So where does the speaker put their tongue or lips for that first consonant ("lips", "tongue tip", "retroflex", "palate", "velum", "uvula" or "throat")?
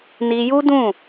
tongue tip